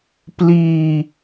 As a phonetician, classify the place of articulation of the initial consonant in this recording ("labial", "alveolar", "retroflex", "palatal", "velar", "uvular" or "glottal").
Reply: labial